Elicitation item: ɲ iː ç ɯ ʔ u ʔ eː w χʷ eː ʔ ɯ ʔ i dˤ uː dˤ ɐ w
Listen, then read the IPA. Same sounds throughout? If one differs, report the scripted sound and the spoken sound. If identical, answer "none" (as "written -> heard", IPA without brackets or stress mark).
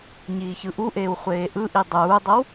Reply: none